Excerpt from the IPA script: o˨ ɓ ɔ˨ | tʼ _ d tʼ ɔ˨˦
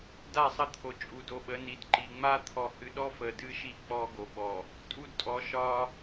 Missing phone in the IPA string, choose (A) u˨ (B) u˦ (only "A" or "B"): B